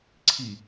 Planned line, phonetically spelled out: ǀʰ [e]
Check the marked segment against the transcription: incorrect: i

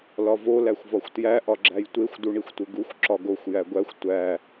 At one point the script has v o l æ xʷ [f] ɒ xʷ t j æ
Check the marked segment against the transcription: incorrect: v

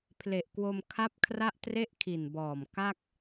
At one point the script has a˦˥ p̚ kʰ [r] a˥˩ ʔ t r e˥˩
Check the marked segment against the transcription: correct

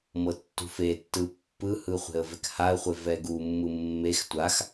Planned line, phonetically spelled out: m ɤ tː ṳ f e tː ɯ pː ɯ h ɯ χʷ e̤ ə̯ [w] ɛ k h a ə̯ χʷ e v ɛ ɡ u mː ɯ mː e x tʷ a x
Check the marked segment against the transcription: incorrect: v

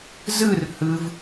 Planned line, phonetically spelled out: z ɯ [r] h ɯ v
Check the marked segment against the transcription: correct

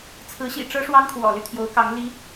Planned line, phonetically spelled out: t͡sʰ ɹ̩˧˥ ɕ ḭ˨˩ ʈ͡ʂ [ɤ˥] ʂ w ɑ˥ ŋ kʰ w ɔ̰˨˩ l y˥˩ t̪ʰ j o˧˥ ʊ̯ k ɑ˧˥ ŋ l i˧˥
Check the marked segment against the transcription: correct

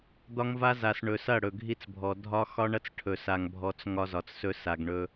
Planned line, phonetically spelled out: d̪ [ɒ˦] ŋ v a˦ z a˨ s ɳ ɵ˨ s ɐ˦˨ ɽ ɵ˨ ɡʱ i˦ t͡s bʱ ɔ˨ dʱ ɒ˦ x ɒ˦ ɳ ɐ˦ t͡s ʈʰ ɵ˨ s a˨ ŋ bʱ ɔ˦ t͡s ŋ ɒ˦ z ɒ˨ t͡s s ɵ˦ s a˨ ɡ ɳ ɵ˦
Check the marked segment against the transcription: correct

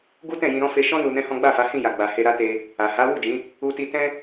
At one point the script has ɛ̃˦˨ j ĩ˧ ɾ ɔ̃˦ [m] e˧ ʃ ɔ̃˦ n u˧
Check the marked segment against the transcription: incorrect: f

